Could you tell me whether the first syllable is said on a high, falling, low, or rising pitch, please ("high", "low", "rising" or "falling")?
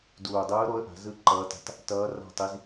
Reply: low